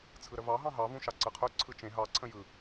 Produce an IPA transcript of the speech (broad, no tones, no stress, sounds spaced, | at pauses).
t͡sʰ ɯ ɾ ə v ɑ ɦ ɑ̃ ɦ ɑ v ũ ʃ ɑ ǀ ɯ qʰ ɵ ǀʰ ɯ t͡ʃ ẽ ɦ ɑ ǀʰ ə̃ j ɯ